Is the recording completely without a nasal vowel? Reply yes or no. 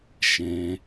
no